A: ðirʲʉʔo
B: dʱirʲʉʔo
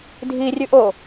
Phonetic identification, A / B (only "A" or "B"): B